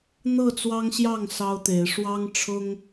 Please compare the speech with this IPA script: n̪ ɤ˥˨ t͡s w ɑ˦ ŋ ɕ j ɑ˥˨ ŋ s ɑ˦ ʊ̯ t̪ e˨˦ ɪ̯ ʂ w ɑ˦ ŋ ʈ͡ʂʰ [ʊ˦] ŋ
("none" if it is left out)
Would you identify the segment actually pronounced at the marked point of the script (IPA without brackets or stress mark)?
ʊ˦